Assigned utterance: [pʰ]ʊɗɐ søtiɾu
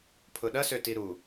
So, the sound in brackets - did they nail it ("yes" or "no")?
yes